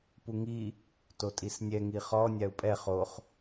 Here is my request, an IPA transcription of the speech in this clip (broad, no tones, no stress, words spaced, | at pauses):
puŋi | totʼisnʲɛ ŋiχɔ nʲau̯pʼɛ χoχ